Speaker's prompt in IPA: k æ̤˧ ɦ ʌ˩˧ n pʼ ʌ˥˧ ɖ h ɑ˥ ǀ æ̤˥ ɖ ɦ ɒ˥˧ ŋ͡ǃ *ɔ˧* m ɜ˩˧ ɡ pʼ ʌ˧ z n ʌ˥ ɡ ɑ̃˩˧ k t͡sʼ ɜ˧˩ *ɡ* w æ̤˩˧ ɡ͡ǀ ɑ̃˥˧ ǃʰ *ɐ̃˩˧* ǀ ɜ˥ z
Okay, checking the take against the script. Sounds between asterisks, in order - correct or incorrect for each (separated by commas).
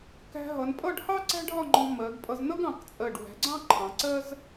incorrect, incorrect, incorrect